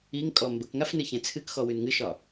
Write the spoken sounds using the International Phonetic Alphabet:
i ŋ kʼ ɔ m b ə k ŋ a f n ɨ ç ɛ̃ t͡sʰ ɨ k x ɔ w ʉ n ŋ ɨ ʃ ɒ

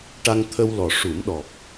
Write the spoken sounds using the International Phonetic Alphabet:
ʈ a˧ ŋ t̪ʰ ə˧ w l ɔ˨˩ ʂ u˨˩˦ m ɗ ɔ˨˩ k̚

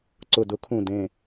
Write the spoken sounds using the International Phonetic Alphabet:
ǀ ʊ˧˩ d ʊ˦˥ kʰ ũ˧˩ d ẽ˧˩

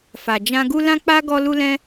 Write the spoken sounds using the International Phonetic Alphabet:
f a˨ d͡ʒ ã˧ ɡ u˦ l ã˦ k͡p a˦ ɡ ɔ˧ l u˧ l ɛ̃˧

